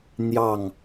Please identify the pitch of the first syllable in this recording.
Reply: falling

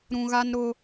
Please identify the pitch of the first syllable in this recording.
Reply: low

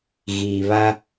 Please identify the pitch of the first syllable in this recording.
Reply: low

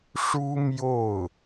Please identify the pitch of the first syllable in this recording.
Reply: high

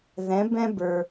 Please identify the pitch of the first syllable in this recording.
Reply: rising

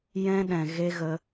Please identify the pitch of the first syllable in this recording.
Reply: high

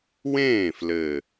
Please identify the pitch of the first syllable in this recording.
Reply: falling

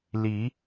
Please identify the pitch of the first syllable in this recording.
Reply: rising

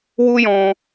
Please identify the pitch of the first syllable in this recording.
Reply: high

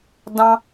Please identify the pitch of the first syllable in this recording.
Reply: high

